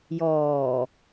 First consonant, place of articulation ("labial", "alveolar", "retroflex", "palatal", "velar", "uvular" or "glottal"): palatal